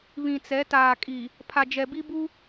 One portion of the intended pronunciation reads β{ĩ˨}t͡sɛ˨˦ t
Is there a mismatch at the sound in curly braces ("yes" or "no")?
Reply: no